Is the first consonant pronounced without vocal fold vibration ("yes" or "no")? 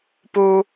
yes